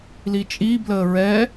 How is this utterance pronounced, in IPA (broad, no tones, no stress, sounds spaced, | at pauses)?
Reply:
l i t͡ʃʼ i b l əː ɹ ɛ